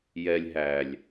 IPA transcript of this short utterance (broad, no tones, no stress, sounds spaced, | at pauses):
j ɛ lʲ ɦ æ lʲ